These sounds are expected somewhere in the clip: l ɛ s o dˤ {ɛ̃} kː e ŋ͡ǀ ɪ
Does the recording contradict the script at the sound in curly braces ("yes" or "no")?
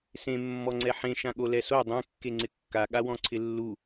no